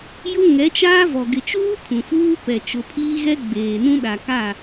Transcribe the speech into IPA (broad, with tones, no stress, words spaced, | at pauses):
jʊ˦ ŋɛ˨˦t͡ʃaː˦vɔ˨ ɡɪ˨t͡ʃuː˦ kʰũ˨fuː˦pɛ˨ t͡ʃʊ˨pʰiː˦ɣɛ˦ ɡ͡beː˨nũ˦ ɗa˨ka˦˨